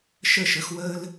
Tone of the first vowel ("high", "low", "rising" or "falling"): falling